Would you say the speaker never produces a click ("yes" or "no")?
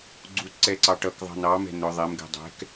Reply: no